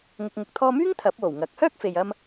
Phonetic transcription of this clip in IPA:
ŋ ʊ˨ k̚ ŋ ʊ˨ k̚ t̪ʰ ɔː˧ m yː˥ ŋ t̪ʰ ɐ˨˥ p̚ w o˨˩ w ŋ ɐ˨˥ k̚ h œː˥ k̚ f e˨ j ɐ˥ m

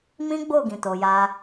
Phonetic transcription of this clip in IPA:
m ĩ˦ ɡ͡b o˦˨ ɡ ĩ˨ t o˨ j a˧

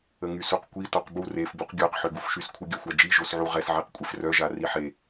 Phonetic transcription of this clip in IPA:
ə ŋ y s u q kʷ i t ɔ q b u r e f b u q ɡʲ ɔ q ħ ø ɡ u f ʃ y s kʷʰ ə ɡʲ œ xʷ a d͡ʒ i ʒ o s ʕ u ʁ ɛ s ʕ e q kʷʼ e f r œ ʒ a r i ħ e

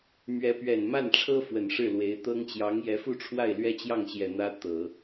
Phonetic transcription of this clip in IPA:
m ɥ ɛ˧˥ p ɥ ɛ˨˩ n m a˥˩ n ʈ͡ʂʰ ɤ˥ f w ə˨˩ n ʂ ɻ̩˥˩ l w e˧˥ ɪ̯ t̪ ɤ˥ ŋ t͡ɕ j ɑ˧˥ ŋ j ɛ˧˥ f u˥ ʈ͡ʂʰ w a˥˩ ɪ̯ l ɥ ɛ˥ t͡ɕ j ɑ˥˩ ŋ ɕ j ɛ˨˩ n̪ ä˥ t̪ ɤ˨˩˦

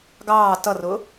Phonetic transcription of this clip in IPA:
ɡ ɑː t ʌ r ʊ

